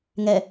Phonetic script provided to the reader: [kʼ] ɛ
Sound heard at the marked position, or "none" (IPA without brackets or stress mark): ŋ